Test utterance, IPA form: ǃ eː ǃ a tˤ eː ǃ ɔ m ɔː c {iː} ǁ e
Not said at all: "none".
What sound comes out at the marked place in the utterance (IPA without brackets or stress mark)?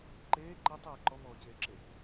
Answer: eː